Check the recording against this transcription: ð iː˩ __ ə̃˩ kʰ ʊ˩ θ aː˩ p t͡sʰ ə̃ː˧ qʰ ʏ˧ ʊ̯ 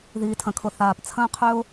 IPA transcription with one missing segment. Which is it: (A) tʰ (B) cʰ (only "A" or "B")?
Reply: A